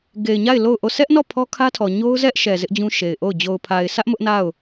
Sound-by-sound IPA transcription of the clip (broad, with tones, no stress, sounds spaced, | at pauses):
ɡ e˨ ɪ̯ ɲ a˦˨ ɪ̯ l o˦˨ ʊ̯ ʔ o˦˨ s ɛ˦ ʔ n ɔ˦˨ pʰ ɔ˦ kʰ ä˦ tʰ ɔ˨ ɲ o˦ ʊ̯ z ɛ˦ ʔ ʃ ɛ˨ z ɪ˦ ʔ d͡ʑ ũ˦ ʃ e˨ ɪ̯ ʔ o˦˨ ʊ̯ d͡ʑ o˨ ʊ̯ pʰ a˨ ɪ̯ sʰ ä˦ ʔ m ʊ˦ ʔ n a˦˨ ʊ̯